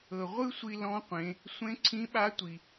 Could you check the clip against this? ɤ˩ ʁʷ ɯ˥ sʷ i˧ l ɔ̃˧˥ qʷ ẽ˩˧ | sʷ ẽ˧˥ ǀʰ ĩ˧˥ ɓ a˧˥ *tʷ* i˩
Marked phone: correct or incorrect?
correct